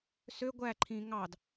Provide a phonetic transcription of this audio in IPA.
s ø ɡʷ æ ǃʰ ĩ ŋ ɑ d

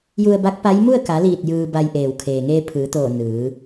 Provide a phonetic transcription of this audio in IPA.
j u˧ ə̯ b a˧˥ k̚ p a˧˥ j m u˥˨ ə̯ k a˩˧ l iː˧˩ t̚ j ɯː˧ b a˧ j ʔ eː˩ w kʰ eː˩ ŋ eː˧ pʰ ɯː˩˧ t̪ oː˧˩ n ɯː˩˧

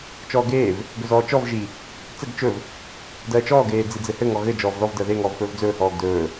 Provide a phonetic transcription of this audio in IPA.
t͡ʃ ɔː ɡ eː v | ɡ ɵ z ɔː t͡ʃ ɔ v ʒ i | t͡s ɘ ɡ t͡ʃ ɵ v | d ɜː t͡ʃ ɔː ɡ eː d͡z i d͡z ɘ h ɘ ŋ ɔ ɣ ɘ d͡ʒ ɔː v ð ɔ v d ɜ ð e ŋ ɔː v f ɵː v d͡z ɵː h ɔː ɡ d ɵː

